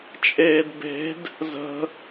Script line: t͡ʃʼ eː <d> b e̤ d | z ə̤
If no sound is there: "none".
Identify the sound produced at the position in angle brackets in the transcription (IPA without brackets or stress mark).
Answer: d